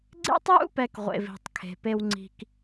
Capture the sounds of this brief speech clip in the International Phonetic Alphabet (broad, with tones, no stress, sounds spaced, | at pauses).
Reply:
ɡ͡ǀ ḛ˦ tˤ j ṵ˦ p ɛ˨ k ʁʷ ḛ˨ v i̤˨ tˤ kʰ e̤˨ p e˦ w ŋ͡ǀ i̤˦ k